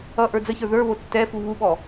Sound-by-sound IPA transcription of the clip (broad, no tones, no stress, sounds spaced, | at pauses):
ʌ ʔ ə˞ d͡z ə ç ə˞ ð ə˞ β o tː ɛ f u β u ɓ ɔ